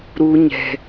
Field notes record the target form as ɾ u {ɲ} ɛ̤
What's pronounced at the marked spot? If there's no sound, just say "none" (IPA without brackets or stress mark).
ɲ